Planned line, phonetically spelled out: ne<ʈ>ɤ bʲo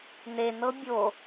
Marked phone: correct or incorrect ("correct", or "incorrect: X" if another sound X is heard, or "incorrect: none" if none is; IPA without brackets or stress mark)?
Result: incorrect: n